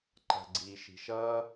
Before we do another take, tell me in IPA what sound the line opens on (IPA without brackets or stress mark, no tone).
ǃ